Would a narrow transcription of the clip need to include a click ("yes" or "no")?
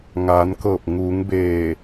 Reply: no